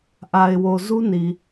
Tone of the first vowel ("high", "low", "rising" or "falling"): low